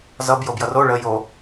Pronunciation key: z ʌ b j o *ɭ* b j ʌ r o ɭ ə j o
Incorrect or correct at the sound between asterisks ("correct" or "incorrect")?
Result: incorrect